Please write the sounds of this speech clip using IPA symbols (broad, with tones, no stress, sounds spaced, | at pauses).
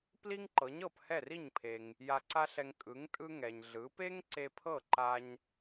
p l i˥ ŋ ǃ ɤ˩˥ ɲ ɤ˥˩ p h ɛ˥˩ r i˥˩ ɲ pʰ e˩ ŋ | j a˧ ǀ a˥ ɬ ɛ˧ ŋ kʼ ɯ˩˥ ŋ tʼ ɯ˥ ŋ ɛ˩ ɲ ɮ ɯ˩˥ p e˥ ŋ ǀ e˧ pʰ ɤ˥˩ ǃ a˧ ɲ